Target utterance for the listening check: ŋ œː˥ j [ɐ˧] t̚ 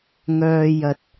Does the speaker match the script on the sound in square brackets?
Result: yes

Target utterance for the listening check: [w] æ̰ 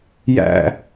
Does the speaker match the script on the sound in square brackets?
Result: no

